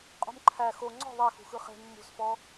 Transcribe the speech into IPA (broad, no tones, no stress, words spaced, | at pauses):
qʼṳmǃʰæ xo ŋ͡ǀɔ̤ ðˤexṳxɯ χe̤ mːṳsfɔ